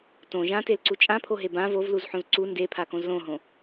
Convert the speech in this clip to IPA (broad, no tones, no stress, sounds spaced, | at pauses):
t õ ʒ ã t e l ǀ u t͡ʃʼ ã pʰ o ɦ e b ã v o v l u z ħ õ z ǀ u n d e pʰ a k õ z l õ ɦ õ